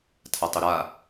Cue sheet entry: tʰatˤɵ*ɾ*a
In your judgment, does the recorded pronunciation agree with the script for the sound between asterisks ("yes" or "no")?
yes